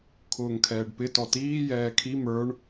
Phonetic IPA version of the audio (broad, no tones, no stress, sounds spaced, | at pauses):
kʰ ʊː ŋ kʰ ɛː ɖ p ɪ t ɔ t iː j ɛː kʰ i m ə˞ ɳ